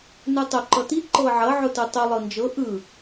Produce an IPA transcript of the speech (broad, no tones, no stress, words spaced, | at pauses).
nɯtˤʊ ǃʌti ǃɤʕʌ ʕʊtɯtˤʊ lˠɤnd͡ʒɤ ʔɯ